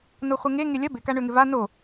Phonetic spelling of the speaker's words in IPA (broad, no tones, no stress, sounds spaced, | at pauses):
n o χʷ ɪ ŋ e ŋ e lʲ ɐ b ɪ k a ɳ ø ŋ ɪ v a n o